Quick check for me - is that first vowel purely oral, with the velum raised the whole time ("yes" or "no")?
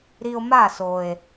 yes